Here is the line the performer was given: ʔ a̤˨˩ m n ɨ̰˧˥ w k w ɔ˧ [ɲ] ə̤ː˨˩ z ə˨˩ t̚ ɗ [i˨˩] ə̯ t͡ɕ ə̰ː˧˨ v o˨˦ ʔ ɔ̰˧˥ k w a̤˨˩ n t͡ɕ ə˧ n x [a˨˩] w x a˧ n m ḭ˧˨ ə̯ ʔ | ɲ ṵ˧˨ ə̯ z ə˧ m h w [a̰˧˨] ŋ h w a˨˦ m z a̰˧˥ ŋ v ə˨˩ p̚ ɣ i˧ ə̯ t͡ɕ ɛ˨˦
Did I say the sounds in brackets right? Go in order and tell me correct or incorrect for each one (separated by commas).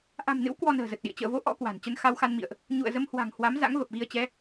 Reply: incorrect, incorrect, incorrect, incorrect